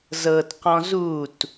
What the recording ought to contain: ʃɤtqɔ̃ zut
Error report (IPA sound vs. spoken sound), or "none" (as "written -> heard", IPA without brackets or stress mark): ʃ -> z